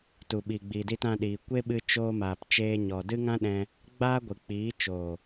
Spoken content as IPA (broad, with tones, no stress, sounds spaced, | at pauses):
t u˨ ɓ iː˨ ɡ͡b iː˨ d i˧ t ã˧ ɗ iː˨ kʷ e˦ ɓ ɨ˧ t͡ʃ oː˧ m aː˨ p t͡ʃ eː˧ ɲ ɔ˨ d ɨ˦ ŋ ã˦ ɗ ɛ̃˧ | ɡ͡b aː˦ ɡʷ ɨ˨ k͡p iː˨˦ t͡ʃ o˨